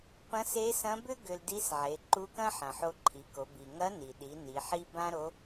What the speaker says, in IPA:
p ɐ̃˧˥ s e˧˥ s ɐ̃˧˥ b ʏ˥ ɡ ʏ˧ l d i˧˥ s ʕ e˩˧ ǃ u˧˥ k ɐ̃˥ ħ ɐ̃˩ ħ o˧ ǃʰ i˩˧ k o˩˧ b i˩ ŋ ɐ˧˥ n i˩ ɗ i˩˧ n i˩˧ ħ i˥ b ã˥ ɾ o˧˥

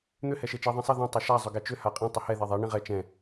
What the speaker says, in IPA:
n̪ ʏ h ɛ ʃ e t͡ʃ e ðˤ ɛ̃ sˤ ɘ ð ɛ̃ tˤ ɘ ʃ a zˤ ʏ ɡ ɛ t͡ʃ ʏ h a qʼ ĩ tˤ ʏ h ɛ ð e ðˤ a ɳ ĩ ʁ ɛ t͡ʃ ɛ̃

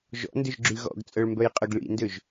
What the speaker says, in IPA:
ʒ ɔ̰ n d ʏ ʒ ɡ͡ǁ y ɣ ɔ̰ ɡ t͡sʼ œ ɭ m b œ j qʼ ʊ ɡ ɭ ḭ n d ø ʒ

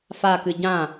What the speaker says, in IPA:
f a k ɨ ɟ ã

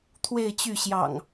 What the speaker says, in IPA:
t̪ʰ w e˥˨ ɪ̯ t͡ɕ y˥˨ ɕ j ɑ̰˨˩ ŋ

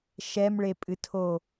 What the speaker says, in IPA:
ʃ ɛ m ɭ e pʼ ɨ tʰ o

